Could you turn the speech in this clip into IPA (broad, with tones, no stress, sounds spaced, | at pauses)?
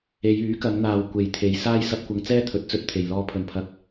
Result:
e˨˧ j yː˨˥ k ɐ˨˧ ŋ n̪ aː˨ w kʷ e˨ j t̪ʰ e˨˧ j s aː˥ j s ɐ˧ p̚ kʷ ɐ˧ ŋ t͡s ɛː˥ t̪ʰ ɵ˨˥ t̚ t͡s ɵ˧ t̚ t̪ʰ e˨ j l ɔː˧ pʰ ɵ˨ n pʰ ɐ˧ k̚